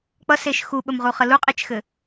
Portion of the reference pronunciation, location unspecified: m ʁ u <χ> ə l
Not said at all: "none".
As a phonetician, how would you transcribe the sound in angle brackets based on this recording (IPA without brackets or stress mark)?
χ